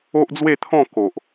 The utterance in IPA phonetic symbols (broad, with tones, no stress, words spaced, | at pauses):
o˦ʔd͡zwe˥˧t̪ʰɔ̃˥˧ ko˨ʔ